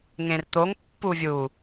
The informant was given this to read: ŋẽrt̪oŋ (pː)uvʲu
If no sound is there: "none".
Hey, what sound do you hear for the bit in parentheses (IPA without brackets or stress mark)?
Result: pː